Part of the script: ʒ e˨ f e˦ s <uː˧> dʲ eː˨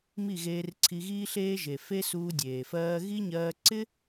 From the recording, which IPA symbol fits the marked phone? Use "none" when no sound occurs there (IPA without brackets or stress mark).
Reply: uː˧